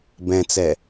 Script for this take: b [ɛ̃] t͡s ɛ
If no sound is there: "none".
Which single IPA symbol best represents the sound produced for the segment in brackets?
ɛ̃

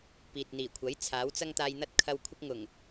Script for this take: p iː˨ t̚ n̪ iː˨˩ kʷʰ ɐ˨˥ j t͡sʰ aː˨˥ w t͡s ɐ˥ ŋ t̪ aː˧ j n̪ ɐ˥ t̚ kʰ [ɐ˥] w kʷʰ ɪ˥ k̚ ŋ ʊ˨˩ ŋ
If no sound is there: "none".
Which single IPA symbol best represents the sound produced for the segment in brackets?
ɐ˧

